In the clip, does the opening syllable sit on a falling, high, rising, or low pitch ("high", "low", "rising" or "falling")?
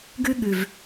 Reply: high